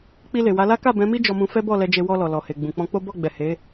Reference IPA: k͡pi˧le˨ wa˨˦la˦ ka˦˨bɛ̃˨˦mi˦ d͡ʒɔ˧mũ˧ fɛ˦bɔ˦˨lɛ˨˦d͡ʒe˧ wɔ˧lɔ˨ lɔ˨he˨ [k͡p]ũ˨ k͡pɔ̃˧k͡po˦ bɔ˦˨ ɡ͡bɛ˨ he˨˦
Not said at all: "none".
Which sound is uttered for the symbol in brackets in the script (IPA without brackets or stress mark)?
ɡ͡b